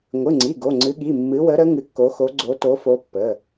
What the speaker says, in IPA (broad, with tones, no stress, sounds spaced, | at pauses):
ŋʷ ɨ˩˧˩ ŋ͡ǀ i˩˧˩ ɡ o˩˧˩ ŋ͡ǀ ɨ˨˦ ɠ i˩˧˩ mː ɨ˨˦ w ə˨˦ ɾ ə˨˦ ŋ ɨ˨˦ kː o˨˦ x o˨˦ ɡ͡ǀ o˨˦ t o˨˦ f o˨˦ pː ə˩˧˩